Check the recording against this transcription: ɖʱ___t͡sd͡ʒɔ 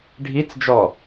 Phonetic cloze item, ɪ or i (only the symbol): i